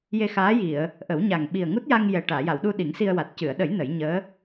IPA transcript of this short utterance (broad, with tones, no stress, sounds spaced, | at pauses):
j e˧ x aː˧˥ j i˨˩˨ ə̯ | ʔ ə˨˩˦ w ɲ a˨˩ ŋ ɓ i˨˩ ə̯ ŋ u˦˥ t̚ j a˧ ŋ j ɛ˨˩ ʈ aː˨˩˨ j a˨˩˨ w ɗ u˧ ɗ i˨˩˦ ŋ s i˧ ə̯ w a˨˩ t̚ c ɨ˨˩˨ ə̯ ɗ ə˨˩˦ j n ə˨˩˦ j ɲ əː˧˥